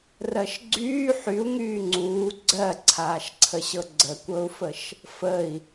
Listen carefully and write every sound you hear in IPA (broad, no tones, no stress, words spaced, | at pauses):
rɜʃɡ͡ǀyː ħyu̯ ŋyːŋ͡ǀuː ɡ͡ǀɜǀʰaːʃǀʰəɕɤ ɡ͡ǀəkʷɤu̯fəʃ | fəi̯